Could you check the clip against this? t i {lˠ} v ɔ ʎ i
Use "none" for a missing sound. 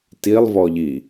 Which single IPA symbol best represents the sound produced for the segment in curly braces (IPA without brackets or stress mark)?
lˠ